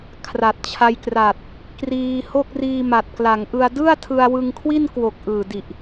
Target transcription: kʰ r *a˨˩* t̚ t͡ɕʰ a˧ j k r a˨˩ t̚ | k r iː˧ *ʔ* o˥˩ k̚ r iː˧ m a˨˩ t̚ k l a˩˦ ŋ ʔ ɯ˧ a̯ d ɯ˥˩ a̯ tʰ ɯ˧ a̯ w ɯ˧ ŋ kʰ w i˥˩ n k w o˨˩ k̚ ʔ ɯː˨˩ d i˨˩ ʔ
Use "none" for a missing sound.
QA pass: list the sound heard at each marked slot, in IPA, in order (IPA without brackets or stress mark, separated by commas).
a˨˩, h